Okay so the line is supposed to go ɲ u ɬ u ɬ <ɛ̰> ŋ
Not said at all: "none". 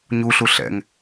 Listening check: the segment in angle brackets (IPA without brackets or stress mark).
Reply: ɛ̰